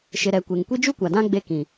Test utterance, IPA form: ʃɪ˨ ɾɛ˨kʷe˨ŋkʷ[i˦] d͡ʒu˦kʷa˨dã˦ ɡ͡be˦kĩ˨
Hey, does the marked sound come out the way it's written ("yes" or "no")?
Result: yes